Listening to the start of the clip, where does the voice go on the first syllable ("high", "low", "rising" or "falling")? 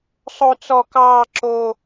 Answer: high